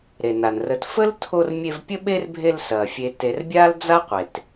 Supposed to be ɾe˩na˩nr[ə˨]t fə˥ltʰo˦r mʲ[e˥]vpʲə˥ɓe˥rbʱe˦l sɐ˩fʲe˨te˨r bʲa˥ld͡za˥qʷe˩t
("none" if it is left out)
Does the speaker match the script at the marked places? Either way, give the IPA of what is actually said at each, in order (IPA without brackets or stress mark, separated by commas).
ə˨, e˦